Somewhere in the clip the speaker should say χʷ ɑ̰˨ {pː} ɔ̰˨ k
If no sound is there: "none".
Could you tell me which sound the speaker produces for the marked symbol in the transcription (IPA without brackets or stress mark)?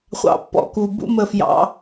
pː